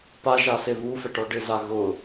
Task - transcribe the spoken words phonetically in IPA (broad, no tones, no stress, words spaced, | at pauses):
paʒase βufɛʈɔ ɖɪza ɣʊ